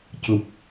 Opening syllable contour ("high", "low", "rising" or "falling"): low